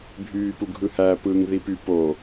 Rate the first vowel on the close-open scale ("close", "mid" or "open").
close